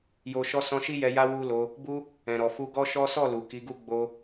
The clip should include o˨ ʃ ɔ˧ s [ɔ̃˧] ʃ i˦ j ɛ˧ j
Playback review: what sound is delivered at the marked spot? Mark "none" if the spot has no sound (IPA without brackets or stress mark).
ɔ̃˧